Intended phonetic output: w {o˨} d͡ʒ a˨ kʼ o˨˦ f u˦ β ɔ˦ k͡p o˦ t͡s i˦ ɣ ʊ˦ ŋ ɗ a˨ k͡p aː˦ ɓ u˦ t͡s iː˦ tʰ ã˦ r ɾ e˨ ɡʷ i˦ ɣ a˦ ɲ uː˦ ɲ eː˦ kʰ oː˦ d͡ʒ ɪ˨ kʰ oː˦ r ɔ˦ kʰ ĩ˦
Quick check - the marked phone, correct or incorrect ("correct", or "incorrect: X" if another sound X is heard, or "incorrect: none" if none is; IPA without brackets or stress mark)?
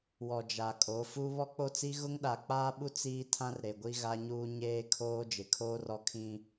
incorrect: ɔ˨